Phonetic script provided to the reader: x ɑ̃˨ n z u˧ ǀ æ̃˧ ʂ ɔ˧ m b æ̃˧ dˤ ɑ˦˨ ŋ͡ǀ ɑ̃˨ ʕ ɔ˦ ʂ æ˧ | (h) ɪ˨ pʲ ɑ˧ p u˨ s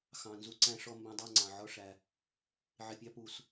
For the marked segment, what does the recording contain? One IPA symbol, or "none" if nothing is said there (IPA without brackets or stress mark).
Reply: ʕ